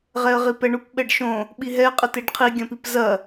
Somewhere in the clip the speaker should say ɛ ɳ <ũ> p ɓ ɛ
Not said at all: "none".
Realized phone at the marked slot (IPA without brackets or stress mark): u